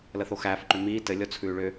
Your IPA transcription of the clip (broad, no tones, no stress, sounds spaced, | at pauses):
l ə θ o x æː f ǃ ʏ m iː t ɘ lʲ ɔ t͡sʰ ʉː ɭ ʏ